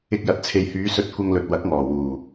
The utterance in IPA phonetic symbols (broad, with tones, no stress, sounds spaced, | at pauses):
ɪ˧ k̚ j ɐ˨˥ t̚ t͡sʰ e˨ j h yː˨˧ s ɵ˧ t̚ kʷ ɐ˧ ŋ l ɵ˨ t̚ w ɐ˨˥ k̚ ŋ ɔː˨˩ w uː˨˩